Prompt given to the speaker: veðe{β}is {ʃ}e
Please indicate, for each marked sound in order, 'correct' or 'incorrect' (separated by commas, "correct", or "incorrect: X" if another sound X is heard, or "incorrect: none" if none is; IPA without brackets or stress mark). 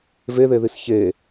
incorrect: ð, incorrect: ç